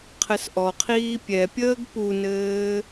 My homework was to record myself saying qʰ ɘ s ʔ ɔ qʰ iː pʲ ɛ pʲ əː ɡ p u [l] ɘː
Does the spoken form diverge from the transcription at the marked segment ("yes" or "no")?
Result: yes